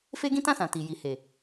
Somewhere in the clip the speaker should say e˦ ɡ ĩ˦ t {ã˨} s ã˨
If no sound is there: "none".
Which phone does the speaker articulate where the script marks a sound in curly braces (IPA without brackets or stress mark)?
ã˦˨